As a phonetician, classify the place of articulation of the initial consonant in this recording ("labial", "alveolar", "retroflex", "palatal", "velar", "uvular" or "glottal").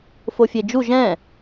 labial